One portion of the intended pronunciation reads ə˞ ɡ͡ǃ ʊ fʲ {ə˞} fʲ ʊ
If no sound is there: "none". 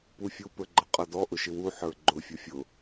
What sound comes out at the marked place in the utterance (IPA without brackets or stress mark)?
ʌ